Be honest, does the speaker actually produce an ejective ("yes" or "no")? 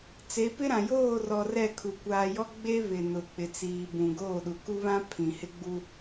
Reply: no